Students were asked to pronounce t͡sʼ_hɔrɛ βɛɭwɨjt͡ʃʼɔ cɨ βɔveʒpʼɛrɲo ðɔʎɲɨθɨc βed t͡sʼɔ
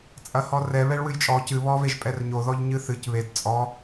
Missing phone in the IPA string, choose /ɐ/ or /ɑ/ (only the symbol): ɐ